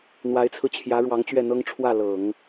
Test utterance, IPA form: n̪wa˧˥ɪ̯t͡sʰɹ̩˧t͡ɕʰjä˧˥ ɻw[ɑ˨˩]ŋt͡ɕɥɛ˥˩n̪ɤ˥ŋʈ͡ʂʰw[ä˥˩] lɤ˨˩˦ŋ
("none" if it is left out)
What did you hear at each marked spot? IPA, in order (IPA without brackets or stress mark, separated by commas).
ɑ˧˥, ä˥˩